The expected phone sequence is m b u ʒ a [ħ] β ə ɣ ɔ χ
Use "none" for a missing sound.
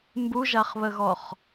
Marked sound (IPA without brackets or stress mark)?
χ